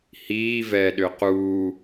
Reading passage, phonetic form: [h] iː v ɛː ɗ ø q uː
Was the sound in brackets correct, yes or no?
yes